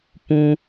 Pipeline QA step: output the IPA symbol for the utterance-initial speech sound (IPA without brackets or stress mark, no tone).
p